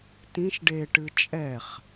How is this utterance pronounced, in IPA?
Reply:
t ĩ ʃ ɖ e ʈ ɨ t͡ʃʼ ɛ χ

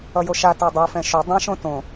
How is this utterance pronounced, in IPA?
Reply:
ʌ j o ʃ a t a dˤ ɯ f ɛ̃ ʃ o dˤ ã ʃ õ t õ

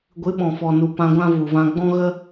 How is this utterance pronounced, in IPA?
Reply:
ɡʷ ɨ˨˦ ɓ ɔ̃˨ f ɔ˨ n u˨ p ã˧ ɡʷ ã˦ v u˨ v ã˧ ɡ͡b ɔ̃˦ ɣ ə˦

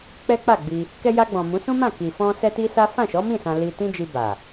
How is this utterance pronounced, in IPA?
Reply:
k͡p ɛ˦ k͡p a˦˨ ɡ͡b i˧ | k ɛ˧ j a˧ ɡ͡b ɔ̃˨ m ũ˨˦ s ũ˦ m ã˦˨ k i˨ f ɔ̃˧ s ɛ˧ t i˦ s a˦ f ã˦˨ ʃ ɔ˨˦ m ĩ˦˨ s ã˧ l i˧ t ĩ˦ d͡ʒ i˧ b a˨

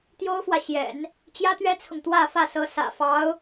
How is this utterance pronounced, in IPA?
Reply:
t̪ j o˥ ʊ̯ f w ä˨ ɕ j ɛ̰˨˩˦ n | t͡ɕ j ä˥ t̪ ɥ ɛ˥ t͡sʰ ʊ˨ ŋ t̪ w ä˥˧ f ä˥˩ s ɤ˧˥ s ä̰˨˩ f ɑ˧˥ ʊ̯

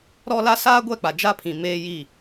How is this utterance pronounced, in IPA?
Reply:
ɾ ɔ˦ l a˦ s aː˦ ɡʷ ɛ˦˨ k͡p a˨ d͡ʒ a˦ pʰ ĩ˨ m e˦ j i˦˨

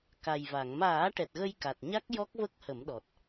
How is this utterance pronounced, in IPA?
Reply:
k a˨˩ j v a˨˩˨ ŋ m aː˨˩˦ ʈ ɛ˨˩ t̚ ɣ ə˧ j k a˨˩ t̚ ɲ a˦˥ k̚ j ɔ˦˥ k̚ v ə˦˥ k̚ h ə˨˩˦ m ɗ ɔ˨˩ t̚

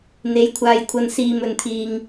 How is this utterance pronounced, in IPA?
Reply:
n̪ e˨˧ j kʷʰ aː˧ j kʷʰ ɐ˧ n s iː˧ m ɵ˧ n t̪ʰ iː˧ ŋ

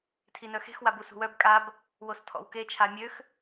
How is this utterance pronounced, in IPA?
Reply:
tʰ i n œ x e̤ x w a b u s ṳ w œ b kʼ a b | w o s tʰ ɔ̰ w k e t͡ʃʰ a mʲ ø x

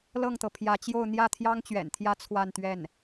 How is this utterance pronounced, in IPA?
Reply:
l ɤ˥˩ ŋ t̪ ɤ˩ pʰ j ä˧˥ t͡ɕ j o˥˧ ʊ̯ n̪ j ä˥˩ t̪ʰ j ɑ˥ ŋ t͡ɕ ɥ ɛ̰˨˩ n t̪ʰ j ä˥ t͡sʰ w a˥˧ n t̪ ɥ ɛ˥˩ n

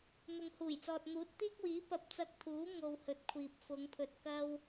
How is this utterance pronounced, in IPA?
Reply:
n̪ ʊ˨ ŋ h uː˨˩ j t͡s ɔː˨ t̚ n̪ uː˨˥ t̚ t̪ iː˥ k̚ w iː˨˥ p ɐ˧ p̚ t͡s ɐ˧ k̚ t̪ʰ uː˨˥ ŋ o˧ w h ɵ˨˥ t̚ kʷʰ iː˨ p̚ f ʊ˨˧ ŋ pʰ ɵ˨ t̚ k ɐ˥ w

